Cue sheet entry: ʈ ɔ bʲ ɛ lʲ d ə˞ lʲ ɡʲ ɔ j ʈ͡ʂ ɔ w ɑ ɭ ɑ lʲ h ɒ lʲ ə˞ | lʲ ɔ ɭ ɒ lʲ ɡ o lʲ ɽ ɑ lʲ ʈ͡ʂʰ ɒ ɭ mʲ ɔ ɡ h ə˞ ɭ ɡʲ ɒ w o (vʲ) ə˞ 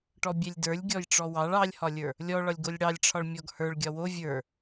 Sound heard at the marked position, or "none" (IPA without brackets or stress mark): vʲ